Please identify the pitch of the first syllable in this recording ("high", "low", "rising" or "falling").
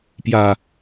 low